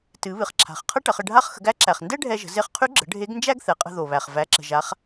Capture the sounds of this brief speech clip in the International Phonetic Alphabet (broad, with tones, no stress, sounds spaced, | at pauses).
t ɨ˩˧ β ɨ˩ χ ǁʰ a̤˩ χ qʰ ɐ˥ ʈ ɐ˩˧ χ ə˧ ɖʱ a˧˥ χ x ə̤˩˧ ɡ æ˧˥ ǁ æ˩ χ n d ɛ˥ ɖʱ ɛ˧ ʒ ə̤˩˧ z e˧ χ qʰ y˧˥ ɡ͡ǁ ə̤˩˧ ɖʱ e˧˥ ɡ n d͡ʒ æ˥ ɡ θ ɛ˩˧ qʼ ə̤˧ ð o˩ β æ˩ χ v æ˩˧ ǁ ə̤˩ ʒ a˩˧ χ